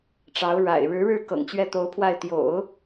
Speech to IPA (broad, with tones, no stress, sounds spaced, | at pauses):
ʈ͡ʂ ɑ˧˥ ʊ̯ ɻ a̰˨˩ ɪ̯ ɻ ɻ̩˧˥ ɻ ɻ̩˥˩ k ɤ̰˨˩ ŋ t͡ɕ ɥ ɛ˥˩ t̪ o˧˥ ʊ̯ pʰ w a˥˩ ɪ̯ t̪ j o̰˨˩˦ ʊ̯